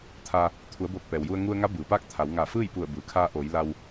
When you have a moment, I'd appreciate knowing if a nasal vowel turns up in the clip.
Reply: no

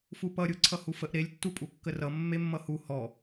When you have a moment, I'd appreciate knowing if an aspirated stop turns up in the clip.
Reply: yes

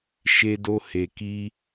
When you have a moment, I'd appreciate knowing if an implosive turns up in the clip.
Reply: no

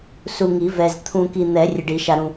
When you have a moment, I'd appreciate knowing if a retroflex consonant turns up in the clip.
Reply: yes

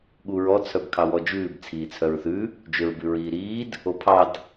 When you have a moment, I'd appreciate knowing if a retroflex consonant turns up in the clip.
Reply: no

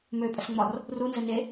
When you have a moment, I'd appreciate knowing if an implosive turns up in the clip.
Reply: no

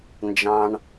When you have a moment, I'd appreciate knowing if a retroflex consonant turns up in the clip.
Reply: yes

